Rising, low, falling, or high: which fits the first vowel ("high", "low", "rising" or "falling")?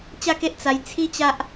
falling